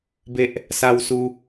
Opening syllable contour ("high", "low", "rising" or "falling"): high